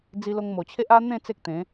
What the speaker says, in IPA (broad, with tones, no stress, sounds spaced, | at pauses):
d͡z i˧ l o˧ ŋ m o˨˩ t͡ɕʰ e˦ ʔ a˦ n̪ ẽ˥˧ t͡s e˦ k̚ t̪ ẽ˨˦